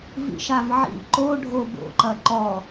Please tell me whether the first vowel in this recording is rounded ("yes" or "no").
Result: no